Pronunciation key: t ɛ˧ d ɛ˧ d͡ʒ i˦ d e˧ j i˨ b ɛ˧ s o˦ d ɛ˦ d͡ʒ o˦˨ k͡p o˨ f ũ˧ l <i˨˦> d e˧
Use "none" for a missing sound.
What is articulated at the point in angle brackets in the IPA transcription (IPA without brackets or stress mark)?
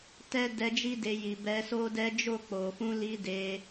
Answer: i˧